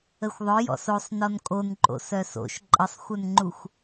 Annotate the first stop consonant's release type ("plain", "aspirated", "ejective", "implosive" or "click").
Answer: ejective